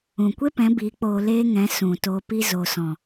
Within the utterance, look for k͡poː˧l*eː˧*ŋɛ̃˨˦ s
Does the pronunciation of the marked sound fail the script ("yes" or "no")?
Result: yes